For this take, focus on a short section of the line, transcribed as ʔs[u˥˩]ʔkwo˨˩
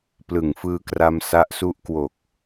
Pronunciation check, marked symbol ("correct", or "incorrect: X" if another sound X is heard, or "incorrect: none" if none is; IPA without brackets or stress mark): incorrect: u˦˥